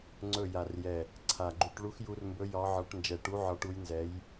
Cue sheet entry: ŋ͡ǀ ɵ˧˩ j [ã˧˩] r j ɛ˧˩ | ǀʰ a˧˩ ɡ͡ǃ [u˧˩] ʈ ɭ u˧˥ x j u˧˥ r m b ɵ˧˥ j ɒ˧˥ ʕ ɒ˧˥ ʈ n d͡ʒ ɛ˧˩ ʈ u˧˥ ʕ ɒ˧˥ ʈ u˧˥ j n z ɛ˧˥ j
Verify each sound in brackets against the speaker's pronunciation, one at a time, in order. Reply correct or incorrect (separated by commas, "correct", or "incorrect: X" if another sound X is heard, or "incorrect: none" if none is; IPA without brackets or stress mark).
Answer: incorrect: a˧˩, incorrect: u˧˥